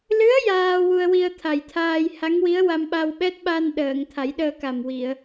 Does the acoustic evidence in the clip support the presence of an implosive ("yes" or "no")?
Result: yes